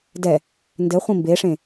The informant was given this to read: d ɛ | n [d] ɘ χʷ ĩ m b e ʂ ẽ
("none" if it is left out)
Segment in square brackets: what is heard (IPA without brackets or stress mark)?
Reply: d